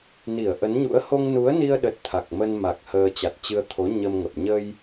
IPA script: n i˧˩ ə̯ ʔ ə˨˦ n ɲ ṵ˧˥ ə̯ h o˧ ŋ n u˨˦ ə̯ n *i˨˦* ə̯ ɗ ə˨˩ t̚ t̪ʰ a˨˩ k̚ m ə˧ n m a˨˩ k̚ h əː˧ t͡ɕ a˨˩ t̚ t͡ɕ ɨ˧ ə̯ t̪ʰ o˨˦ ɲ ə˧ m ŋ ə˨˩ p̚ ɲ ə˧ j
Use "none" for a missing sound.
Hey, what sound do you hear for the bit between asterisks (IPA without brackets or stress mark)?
i˧